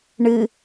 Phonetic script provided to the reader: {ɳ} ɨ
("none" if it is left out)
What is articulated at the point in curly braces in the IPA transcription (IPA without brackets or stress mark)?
ɳ